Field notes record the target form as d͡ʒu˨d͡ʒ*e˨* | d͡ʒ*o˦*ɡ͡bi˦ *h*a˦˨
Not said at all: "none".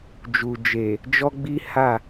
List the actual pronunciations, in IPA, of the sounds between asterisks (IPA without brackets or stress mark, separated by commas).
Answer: e˨, ɔ˦, h